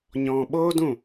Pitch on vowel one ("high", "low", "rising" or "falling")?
low